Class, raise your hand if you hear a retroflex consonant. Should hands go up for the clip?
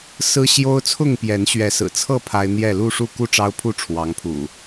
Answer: yes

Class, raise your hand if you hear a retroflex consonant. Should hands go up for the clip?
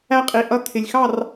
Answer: no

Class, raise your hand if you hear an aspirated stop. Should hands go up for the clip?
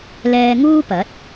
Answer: no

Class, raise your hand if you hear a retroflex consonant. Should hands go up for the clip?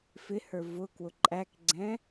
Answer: no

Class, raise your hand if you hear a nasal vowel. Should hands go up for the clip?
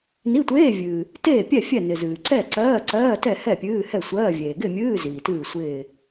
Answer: no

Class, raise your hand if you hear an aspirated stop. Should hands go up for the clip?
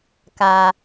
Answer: no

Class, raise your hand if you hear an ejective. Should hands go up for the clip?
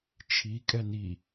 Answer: yes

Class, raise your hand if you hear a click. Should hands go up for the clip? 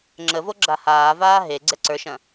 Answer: yes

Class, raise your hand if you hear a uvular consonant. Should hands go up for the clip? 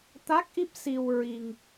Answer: no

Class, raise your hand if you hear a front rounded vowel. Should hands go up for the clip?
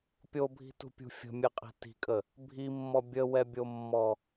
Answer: no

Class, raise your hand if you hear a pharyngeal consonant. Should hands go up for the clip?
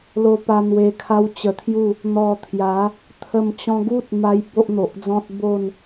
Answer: no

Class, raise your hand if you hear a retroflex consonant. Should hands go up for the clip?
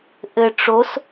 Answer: yes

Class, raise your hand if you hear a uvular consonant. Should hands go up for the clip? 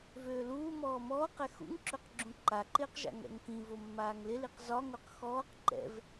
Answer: yes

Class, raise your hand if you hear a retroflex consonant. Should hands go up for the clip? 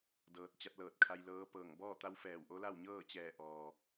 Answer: no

